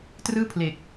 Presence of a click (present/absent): absent